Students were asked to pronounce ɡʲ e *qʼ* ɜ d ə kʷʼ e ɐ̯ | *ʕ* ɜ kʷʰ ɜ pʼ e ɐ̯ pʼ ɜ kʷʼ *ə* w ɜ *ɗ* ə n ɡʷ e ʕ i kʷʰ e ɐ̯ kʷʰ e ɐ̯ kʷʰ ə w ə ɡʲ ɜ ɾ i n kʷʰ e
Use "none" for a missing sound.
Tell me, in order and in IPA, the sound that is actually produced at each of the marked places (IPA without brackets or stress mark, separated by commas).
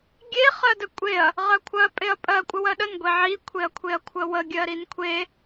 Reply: χ, ʁ, ə, ɗ